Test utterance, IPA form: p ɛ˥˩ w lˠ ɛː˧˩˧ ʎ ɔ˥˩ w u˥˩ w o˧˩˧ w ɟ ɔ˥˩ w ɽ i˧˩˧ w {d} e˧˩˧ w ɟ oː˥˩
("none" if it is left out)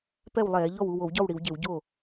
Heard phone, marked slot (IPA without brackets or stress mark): ɟ